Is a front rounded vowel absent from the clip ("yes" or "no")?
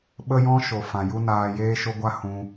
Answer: yes